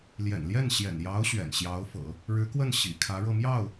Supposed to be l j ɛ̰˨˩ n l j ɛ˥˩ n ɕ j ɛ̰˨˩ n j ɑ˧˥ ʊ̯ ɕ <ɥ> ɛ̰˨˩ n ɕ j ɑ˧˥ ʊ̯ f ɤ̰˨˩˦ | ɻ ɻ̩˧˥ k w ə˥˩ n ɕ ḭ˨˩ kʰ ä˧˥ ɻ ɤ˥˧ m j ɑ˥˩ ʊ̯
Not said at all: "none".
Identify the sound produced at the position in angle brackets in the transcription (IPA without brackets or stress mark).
ɥ